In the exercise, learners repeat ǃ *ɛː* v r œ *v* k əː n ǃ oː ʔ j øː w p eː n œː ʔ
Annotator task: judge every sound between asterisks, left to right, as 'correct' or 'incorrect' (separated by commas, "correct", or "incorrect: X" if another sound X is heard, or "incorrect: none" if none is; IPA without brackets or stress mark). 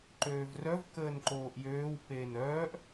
incorrect: øː, correct